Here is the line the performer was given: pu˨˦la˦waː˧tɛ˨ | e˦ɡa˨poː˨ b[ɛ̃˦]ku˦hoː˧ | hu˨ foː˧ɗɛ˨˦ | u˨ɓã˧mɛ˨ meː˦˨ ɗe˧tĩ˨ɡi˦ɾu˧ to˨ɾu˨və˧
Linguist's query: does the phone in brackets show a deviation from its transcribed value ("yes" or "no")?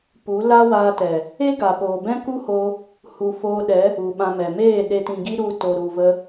no